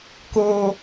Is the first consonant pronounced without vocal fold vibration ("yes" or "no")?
yes